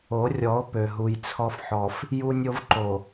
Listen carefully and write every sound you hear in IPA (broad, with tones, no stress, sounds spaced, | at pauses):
o˨˦ rʲ ɔ˨˦ o̯ p ø˨ ɦ u˨ j t͡sʰ ɔ˦ f ħ ɔ˨ f | j u˦ nʲ o˦ v ǃ o˨